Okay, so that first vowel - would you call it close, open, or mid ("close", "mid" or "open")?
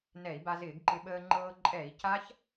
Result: mid